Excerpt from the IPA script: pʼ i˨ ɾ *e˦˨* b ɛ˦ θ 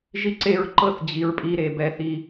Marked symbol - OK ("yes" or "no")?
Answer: no